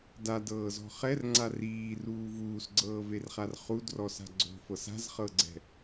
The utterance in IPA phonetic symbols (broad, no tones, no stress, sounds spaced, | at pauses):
d a d ɤː z ɔ̤ χ ɛ r ŋ͡ǀ a r iː r uː v uː s ɡ͡ǀ ɤː v e r χ a r χ u d r ɔ s a̤ ɡ͡ǀ o̤ f ɤ s a̤ z χ ɤ ɡ͡ǀ ɛ̤